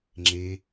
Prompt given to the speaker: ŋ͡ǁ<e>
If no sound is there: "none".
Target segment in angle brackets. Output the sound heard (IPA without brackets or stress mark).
e